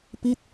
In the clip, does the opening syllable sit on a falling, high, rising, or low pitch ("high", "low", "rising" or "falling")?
falling